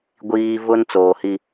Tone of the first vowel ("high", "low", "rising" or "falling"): low